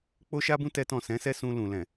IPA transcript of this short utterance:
k͡p o˦ ʃ a˦ b ũ˦ t ɛ˦ t ɔ̃˦˨ s ɛ̃˨˦ s ɛ˦ s ũ˧ l ũ˨ l ɛ̃˨

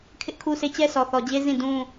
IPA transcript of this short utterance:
kʰ ɪ˦ ʔ kʰ u˦ sʰ e˦˨ t͡ɕ ɛ˦ sʰ ɔ˨ θ ɔ˨ d͡ʑ e˦ z ĩ˦˨ d ũ˦

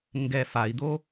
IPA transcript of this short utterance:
ŋ ɡ ɛ f a i̯ d̪ o

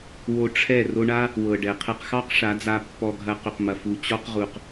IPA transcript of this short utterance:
w o˧ ʈ͡ʂʰ ɛ˦˨ r o˧ ɳ a˦ | w ɤ˨ ɖ ɛ˨ qʰ ɛ˧ q x ɑ˦ q ʂ a˨˦ d͡z a˧ pː ɔ˧ ɡʱ ɐ˧ q ʏ˨ q m ɐ˨ f u˨ t͡ɕ ɔ˦ q ʁ u˨ q

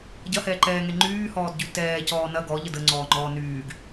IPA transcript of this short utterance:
ɟ ɐ h ɛː ǃ ɛː ŋ ɛ ŋ͡ǃ yː h ɔː d ɟ y t ɛː c ɔː n ɐ ɡ ɔ ʎ ə d ə ŋ͡ǀ ɔː ŋ͡ǃ ɔː n yː ɡ

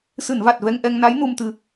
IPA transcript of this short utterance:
s ɨ˨˩˨ n v a˨˩ t̚ v ɛ˧ ŋ ʔ ɛ˧ ŋ n a˧˥ j n u˧ m t̪ ɨ˧

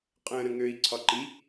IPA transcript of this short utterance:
qʼ ə̃ː ɾ ə̃ ŋ ø i̯ ǀʰ ɒ ǃ i

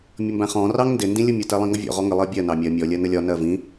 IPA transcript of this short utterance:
mʲ ʌ m b æ̃ χ ɔ̃ r ɑ ŋ n d ɪ n d ĩ lʲ ʊ mʲ ʊ t ɛ lˠ ĩ ŋ ʌ vʲ ɔ̰ ʁ ɔ ŋ ə lˠ ɜ bʲ ɜ n ɑ mʲ ɜ mʲ ɔ lʲ ɜ n ə lʲ ɒ n ɜ v ĩ

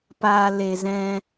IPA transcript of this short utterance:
p aː˨ l e˨ z ɛ̃˧

